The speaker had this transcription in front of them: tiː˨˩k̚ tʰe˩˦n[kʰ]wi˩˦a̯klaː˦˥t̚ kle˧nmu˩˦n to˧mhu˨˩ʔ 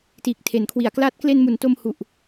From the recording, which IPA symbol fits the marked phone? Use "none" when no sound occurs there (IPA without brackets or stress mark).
kʰ